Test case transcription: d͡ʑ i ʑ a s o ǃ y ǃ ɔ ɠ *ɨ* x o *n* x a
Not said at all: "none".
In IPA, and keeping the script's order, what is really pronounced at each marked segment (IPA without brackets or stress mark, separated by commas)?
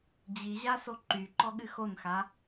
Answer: ɨ, n